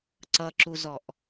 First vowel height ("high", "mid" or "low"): mid